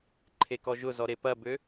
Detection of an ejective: absent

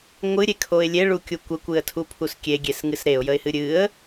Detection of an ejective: absent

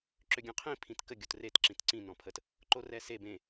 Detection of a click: present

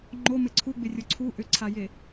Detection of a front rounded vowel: present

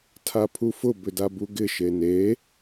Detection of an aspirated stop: present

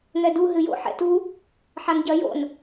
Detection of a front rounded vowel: absent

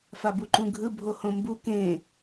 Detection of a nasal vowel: present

